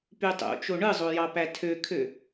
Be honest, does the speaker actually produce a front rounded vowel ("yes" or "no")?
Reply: yes